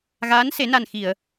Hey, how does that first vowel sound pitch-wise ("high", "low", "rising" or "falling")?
rising